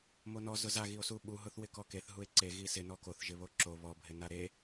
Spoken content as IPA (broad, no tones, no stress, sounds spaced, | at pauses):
m o n ɔ z ʊ z a ɣ i o̯ s u ɓ u ɦ ʊ θ w ɪ k ɔ k e θ ɦ u e̯ ǀ e ɣ i s ɪ n ɔ k o θ ʒ ɪ β o ǁ o β ɔ bʱ ɪ n a ɾ e